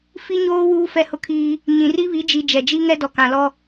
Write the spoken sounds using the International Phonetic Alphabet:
fi˦ɲoː˦ wuː˦fɛ˦˨hʊ˦kʰiː˦ | ɲĩ˨ri˦βi˨˦d͡ʒi˨ d͡ʒɛ˨d͡ʒi˦ ŋɛ˦dɔ˨kã˨lɔ˦

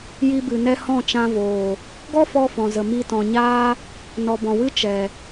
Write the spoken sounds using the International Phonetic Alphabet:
ji˧bɨ˨ nɛ˧ hɔ̃˦˨t͡ʃã˧voː˨ | ɡɔ˦fɔ˧fɔ̃˨zə˨ mi˧tɔ̃˨ɲaː˦ | nɔ˨bɔ̃˨wɨ˦ t͡ʃɛ˨

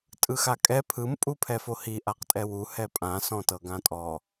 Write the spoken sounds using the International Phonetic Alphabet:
tʼɯxakʼɛ pʰɯm pʼupʰɛfohi ʔaqtʼɛwu hɛpʼã sɔ̃tɤɡãtʼɔ

